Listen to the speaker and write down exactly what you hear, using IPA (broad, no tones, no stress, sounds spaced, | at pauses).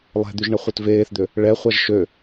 lˠ ɛ̤ d̪ y ʒ ɳ ə χʷ œ t v eː θ d̪ ø | ɭ ɛ χʷ a ʒ ʃ ø